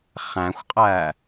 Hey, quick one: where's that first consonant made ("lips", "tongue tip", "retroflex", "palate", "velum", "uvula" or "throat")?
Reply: uvula